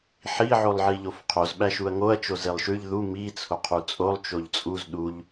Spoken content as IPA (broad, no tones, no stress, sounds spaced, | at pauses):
ħ i ʕ o lˠ ʕ i ʎ o f qʰ o z ɓ æ ʃ u ɐ̯ ŋ o ɐ̯ t͡ʃ o z e lˠ ʃ ʉ ʎ ð u m i t͡sʰ o qʰ u t͡sʼ o lˠ t͡ʃ o ʎ t͡sʼ u z ɗ u ʎ